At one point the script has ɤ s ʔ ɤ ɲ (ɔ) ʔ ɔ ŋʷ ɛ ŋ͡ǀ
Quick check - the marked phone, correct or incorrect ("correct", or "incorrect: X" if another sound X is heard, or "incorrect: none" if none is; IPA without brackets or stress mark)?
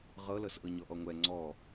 correct